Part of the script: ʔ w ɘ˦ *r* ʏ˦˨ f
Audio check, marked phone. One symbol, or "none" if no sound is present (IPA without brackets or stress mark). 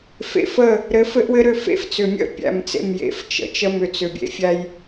ɾ